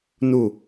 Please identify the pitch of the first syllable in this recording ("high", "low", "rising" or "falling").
falling